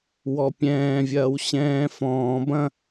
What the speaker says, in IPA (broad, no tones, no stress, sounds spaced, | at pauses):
w ɔ pʲ ɛ̃ː vʲ ɐː w ɕ ɛ̃ː f ɔ̃ː b ɐ̃